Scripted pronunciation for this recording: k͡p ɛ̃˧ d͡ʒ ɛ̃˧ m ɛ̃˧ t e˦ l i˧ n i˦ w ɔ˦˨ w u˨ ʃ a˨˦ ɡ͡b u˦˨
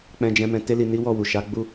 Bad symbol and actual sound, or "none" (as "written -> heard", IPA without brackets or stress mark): none